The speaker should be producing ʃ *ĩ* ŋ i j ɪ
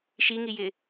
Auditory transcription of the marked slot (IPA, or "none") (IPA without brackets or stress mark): i